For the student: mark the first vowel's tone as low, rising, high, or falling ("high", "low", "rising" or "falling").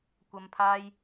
low